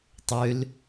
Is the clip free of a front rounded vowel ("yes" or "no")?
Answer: no